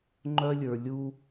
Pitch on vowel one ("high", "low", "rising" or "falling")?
high